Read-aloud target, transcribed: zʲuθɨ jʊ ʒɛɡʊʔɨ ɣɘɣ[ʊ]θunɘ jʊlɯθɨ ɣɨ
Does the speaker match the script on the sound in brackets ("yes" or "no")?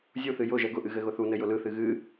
yes